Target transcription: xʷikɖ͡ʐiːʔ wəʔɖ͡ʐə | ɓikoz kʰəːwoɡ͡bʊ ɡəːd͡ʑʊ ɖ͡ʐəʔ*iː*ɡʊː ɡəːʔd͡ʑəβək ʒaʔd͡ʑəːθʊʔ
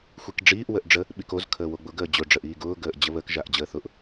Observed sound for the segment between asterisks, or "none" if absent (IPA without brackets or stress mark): iː